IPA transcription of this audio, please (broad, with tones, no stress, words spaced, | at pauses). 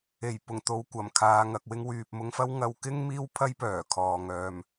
e˨˩jpʊ˨˩ŋ t̪o˨w kʷɐ˨˩mkʰaː˨ ŋɐ˨k̚ wɪ˧ŋwyː˨p̚mʊ˧ŋfɐ˥w ŋɐ˧w kɪ˥ŋ miː˥wpʰɐ˥jpœː˨˩kʰɔː˨ ŋœː˨m